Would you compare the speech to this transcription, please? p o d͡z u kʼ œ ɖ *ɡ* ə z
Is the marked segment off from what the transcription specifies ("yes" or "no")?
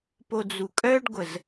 yes